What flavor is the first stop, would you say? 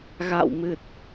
plain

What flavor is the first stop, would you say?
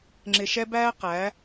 click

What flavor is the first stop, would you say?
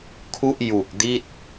aspirated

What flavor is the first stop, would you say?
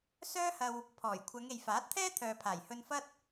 aspirated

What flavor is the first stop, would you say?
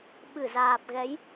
implosive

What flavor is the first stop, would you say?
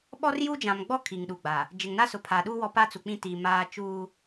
implosive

